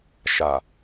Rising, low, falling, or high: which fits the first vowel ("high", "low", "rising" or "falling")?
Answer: low